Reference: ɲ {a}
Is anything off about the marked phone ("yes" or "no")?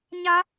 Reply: no